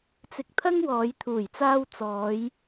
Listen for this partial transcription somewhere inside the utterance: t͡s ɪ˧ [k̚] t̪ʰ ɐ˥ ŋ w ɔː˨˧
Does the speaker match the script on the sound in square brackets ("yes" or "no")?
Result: yes